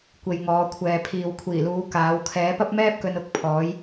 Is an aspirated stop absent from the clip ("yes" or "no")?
no